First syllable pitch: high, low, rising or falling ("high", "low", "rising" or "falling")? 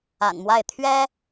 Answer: low